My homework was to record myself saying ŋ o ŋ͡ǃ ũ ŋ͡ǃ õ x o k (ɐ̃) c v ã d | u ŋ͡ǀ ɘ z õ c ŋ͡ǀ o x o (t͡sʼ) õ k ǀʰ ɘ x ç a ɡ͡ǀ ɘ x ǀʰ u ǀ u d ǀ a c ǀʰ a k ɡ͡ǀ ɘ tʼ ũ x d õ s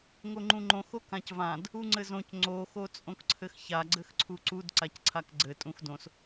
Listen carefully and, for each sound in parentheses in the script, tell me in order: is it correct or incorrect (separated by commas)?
incorrect, correct